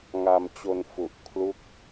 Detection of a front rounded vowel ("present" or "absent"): absent